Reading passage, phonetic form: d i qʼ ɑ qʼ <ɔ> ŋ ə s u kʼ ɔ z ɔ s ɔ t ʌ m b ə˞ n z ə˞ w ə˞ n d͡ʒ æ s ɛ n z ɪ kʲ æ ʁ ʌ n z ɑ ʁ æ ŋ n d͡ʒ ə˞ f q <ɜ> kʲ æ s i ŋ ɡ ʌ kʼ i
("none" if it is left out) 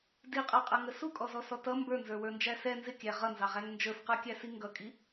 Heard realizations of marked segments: ʌ, ə˞

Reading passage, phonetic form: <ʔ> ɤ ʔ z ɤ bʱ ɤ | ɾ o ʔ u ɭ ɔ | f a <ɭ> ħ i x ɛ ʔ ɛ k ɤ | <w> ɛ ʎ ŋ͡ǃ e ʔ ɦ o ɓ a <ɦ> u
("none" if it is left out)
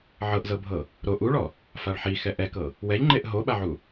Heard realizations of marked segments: ʕ, ɭ, w, ʕ

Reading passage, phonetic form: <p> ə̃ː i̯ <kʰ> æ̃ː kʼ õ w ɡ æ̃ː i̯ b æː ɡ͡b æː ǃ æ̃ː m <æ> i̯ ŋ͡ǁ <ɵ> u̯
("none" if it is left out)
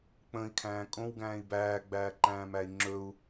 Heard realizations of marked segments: k͡p, kʰ, æ, ɵ

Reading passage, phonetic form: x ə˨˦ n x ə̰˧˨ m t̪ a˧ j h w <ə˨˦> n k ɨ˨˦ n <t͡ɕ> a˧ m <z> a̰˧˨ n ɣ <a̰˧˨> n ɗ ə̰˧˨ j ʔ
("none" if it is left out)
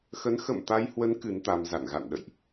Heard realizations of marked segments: ə˨˦, t̪, z, a̰˧˨

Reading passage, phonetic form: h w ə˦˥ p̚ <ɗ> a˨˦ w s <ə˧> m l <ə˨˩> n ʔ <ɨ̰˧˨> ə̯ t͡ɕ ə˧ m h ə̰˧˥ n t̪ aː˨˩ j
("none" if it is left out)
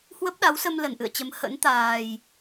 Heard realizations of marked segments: ɗ, ə˧, ə˨˩, ɨ̰˧˨

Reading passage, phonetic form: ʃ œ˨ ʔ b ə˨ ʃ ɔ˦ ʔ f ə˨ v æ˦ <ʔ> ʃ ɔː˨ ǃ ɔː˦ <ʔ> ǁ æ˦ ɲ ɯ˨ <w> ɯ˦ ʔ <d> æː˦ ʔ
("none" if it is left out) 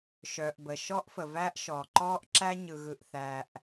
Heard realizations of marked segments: ʔ, ʔ, ɣ, θ

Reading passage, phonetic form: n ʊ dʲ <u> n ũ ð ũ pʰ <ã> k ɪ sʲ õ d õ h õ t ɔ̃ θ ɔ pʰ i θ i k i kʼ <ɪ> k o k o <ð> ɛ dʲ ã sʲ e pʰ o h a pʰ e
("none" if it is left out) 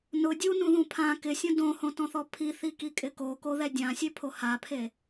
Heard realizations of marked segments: u, ã, ɪ, ð

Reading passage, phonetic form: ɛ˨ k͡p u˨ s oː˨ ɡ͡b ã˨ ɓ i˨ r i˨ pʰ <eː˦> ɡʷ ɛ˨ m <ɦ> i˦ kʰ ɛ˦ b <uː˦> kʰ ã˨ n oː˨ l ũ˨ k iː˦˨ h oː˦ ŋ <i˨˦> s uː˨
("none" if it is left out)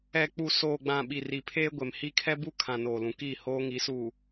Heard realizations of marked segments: eː˦, h, u˦, i˨˦

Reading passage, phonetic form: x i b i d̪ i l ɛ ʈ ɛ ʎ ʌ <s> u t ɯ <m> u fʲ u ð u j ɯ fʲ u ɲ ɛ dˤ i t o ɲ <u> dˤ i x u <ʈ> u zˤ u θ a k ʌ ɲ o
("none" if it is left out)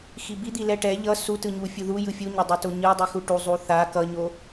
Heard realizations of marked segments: s, ɲ, ɯ, ʈ

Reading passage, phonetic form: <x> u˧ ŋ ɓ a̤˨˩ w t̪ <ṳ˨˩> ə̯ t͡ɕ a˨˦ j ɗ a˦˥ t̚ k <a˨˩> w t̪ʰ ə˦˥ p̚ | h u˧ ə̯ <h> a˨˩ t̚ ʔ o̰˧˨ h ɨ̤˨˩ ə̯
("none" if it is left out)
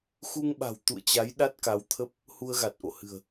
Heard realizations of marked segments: x, ṵ˧˨, a˨˦, ɣ

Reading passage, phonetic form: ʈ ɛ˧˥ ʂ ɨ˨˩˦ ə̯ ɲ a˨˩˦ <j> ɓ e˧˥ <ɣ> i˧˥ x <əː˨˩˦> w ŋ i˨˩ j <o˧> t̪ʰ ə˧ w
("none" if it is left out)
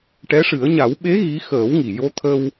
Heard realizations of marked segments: w, ɣ, əː˨˩˦, o˧

